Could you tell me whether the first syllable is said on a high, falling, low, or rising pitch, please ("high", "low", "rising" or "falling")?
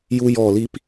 high